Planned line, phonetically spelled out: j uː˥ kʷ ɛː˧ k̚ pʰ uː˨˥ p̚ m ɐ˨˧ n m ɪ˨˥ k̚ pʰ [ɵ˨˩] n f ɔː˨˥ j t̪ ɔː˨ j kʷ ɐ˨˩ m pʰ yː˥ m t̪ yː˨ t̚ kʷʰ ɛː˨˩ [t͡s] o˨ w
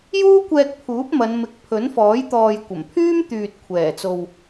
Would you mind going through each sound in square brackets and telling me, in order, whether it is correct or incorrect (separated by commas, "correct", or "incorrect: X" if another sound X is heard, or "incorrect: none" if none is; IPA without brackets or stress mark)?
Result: incorrect: ɵ˨˥, correct